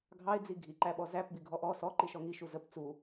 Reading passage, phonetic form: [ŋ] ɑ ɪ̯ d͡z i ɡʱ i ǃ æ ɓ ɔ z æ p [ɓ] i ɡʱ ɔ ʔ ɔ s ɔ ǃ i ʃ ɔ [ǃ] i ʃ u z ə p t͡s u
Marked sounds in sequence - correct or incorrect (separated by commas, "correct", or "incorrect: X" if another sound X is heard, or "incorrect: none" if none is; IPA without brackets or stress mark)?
incorrect: ɡʱ, incorrect: b, incorrect: ŋ